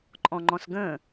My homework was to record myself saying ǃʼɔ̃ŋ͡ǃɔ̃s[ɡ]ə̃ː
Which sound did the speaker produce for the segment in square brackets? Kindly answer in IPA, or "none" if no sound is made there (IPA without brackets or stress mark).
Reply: ɡ